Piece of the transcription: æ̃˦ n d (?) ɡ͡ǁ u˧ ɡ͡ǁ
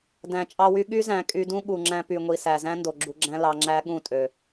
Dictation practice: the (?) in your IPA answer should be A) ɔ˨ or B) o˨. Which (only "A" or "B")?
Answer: B